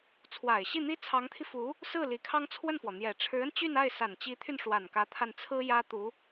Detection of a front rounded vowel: present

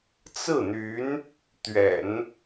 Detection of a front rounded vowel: present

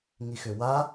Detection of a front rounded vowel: present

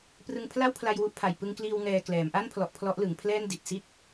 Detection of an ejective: absent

